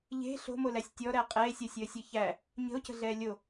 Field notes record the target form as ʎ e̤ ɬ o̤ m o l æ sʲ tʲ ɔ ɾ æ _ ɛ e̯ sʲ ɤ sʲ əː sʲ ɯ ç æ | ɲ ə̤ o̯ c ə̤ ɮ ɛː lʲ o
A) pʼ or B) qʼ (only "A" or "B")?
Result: B